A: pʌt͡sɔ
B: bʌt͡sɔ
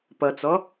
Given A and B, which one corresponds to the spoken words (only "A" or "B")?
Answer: A